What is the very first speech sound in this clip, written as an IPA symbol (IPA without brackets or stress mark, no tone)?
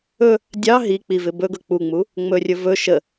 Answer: ɵ